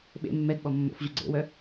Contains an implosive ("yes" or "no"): yes